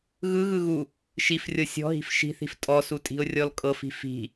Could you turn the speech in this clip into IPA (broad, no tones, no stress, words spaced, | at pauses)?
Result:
ɣɯ ɣɯɣu | ʃifrʲɤ sʲɔ̤ ɦi̤fʃi̤θi̤f tʼɔsutʼi̤ʊ̯ rʲɔlkʼɤfi̤ fi̤